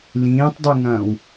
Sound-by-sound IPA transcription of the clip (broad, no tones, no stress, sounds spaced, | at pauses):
l ĩː tˤ dˤ y ŋ ɐ̃ː w